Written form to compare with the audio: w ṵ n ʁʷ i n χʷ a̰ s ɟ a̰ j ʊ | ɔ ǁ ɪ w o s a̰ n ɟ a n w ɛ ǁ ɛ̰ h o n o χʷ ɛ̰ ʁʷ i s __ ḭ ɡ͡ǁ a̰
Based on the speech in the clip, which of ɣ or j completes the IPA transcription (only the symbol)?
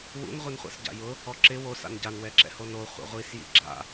j